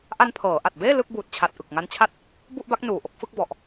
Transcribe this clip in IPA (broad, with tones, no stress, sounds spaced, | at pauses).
ʔ a˧ n pʰ ɤː˩˦ ʔ a˨˩ t̚ b eː˥˩ l ɯ˥˩ k̚ b uː˨˩ t̚ t͡ɕʰ a˨˩ t̚ ʔ ɯ˨˩ k̚ ŋ a˦˥ n t͡ɕʰ a˥˩ t̚ | b u˥˩ ʔ b a˦˥ k̚ n uː˨˩ ʔ o˥˩ k̚ f ɯ˦˥ k̚ b ɔ˨˩ ʔ